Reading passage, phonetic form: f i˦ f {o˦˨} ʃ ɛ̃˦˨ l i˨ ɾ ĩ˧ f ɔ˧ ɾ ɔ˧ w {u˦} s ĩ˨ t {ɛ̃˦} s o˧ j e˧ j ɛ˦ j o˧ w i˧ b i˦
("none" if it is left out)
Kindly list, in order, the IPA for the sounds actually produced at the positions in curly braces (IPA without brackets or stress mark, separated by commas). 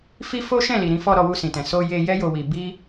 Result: o˦, u˧, ɛ̃˨